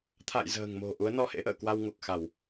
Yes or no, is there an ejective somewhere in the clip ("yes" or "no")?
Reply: no